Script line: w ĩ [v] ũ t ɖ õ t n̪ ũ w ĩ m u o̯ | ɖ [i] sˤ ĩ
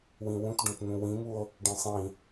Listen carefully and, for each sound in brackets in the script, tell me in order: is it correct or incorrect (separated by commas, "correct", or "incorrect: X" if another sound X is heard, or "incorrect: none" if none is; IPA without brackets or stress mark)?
incorrect: w, incorrect: ĩ